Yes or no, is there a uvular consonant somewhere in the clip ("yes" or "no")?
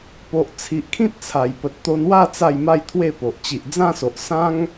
no